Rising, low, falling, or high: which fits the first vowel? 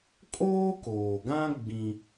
high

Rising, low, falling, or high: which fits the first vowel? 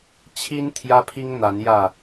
high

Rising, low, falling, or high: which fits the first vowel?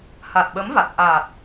low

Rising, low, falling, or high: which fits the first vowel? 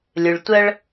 low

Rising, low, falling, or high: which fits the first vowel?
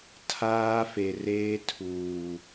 high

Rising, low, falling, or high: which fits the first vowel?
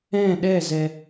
falling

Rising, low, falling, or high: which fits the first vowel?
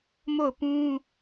falling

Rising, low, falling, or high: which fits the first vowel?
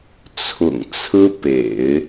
low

